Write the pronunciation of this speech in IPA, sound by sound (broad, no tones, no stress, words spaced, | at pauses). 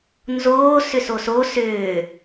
nzoː sʏsoso sʏː